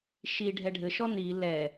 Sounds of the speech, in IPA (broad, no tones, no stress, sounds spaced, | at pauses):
ʃ i ɖʱ ɛ ɖʱ ɘ ʃ ɔ n i l ɛ